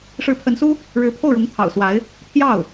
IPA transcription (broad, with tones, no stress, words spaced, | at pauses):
ʂɻ̩˧˥pʰə˧˥nsu˥ | ɻɻ̩˧˥pʰo˥˩ʊ̯ɻʊ˧˥ŋ t̪ʰɑ̰˨˩ʊ̯swa˧˥ɪ̯ | t̪ʰjɑ˥˩ʊ̯